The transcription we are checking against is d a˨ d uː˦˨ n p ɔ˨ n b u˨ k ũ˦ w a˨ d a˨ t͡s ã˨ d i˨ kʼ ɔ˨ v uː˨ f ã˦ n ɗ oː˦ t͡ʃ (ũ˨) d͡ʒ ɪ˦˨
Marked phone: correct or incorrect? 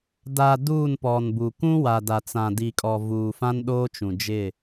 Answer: correct